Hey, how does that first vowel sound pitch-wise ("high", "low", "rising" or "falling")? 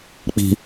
low